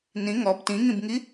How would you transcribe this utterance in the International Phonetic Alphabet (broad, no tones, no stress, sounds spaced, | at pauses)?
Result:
n ĩ ŋ ɔ b t ĩ ŋ ĩ b ŋ i